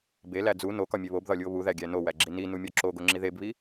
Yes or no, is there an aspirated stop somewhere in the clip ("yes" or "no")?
no